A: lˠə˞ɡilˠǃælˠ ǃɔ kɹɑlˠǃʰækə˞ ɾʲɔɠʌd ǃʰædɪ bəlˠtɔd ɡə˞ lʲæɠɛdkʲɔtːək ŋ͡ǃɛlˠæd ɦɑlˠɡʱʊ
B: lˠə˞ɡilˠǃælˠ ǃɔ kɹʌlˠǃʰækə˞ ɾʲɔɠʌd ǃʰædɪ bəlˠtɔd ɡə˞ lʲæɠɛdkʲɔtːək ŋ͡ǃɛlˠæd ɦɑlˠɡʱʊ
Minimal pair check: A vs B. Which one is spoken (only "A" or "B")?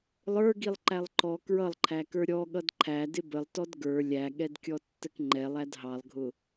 B